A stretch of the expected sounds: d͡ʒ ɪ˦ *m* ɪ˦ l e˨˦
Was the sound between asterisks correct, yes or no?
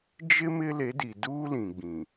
yes